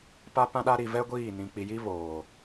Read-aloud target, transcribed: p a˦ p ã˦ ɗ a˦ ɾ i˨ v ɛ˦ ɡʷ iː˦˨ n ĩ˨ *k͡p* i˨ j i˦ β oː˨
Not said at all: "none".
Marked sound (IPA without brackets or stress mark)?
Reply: k͡p